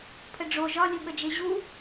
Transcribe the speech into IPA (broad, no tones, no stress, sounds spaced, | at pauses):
pʰ ə ɖ͡ʐ o ʒ ɒ lʲ u ɠ ə d͡ʒ e ʑ u